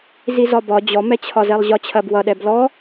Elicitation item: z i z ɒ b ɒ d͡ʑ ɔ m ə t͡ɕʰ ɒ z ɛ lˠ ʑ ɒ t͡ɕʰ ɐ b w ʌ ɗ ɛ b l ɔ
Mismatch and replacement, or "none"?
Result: ə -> ɛ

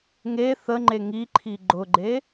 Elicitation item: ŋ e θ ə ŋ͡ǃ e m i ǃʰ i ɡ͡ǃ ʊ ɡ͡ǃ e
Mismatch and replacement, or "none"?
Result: m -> ŋ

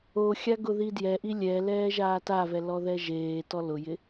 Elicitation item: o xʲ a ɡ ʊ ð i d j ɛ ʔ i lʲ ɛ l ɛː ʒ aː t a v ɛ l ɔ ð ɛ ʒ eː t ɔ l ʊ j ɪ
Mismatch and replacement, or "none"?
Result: none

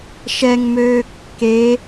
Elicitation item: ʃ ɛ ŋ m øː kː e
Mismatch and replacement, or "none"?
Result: none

